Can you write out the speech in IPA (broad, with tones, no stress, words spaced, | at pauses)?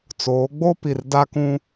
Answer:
t͡soː˨˦ɡ͡bo˦pi˨r da˦kũ˦